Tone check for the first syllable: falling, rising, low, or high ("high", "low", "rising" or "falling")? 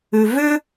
low